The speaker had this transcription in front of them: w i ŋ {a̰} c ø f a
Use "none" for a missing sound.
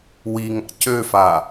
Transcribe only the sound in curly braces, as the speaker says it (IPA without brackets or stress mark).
a̰